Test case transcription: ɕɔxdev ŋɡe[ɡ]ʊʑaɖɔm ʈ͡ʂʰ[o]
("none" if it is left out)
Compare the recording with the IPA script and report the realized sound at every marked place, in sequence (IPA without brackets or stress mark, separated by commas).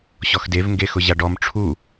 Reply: x, u